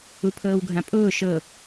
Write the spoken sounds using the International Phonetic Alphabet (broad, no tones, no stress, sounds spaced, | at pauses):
u pʰ ɤː w ɡʱ ã pʼ ʊː ʃ ɤ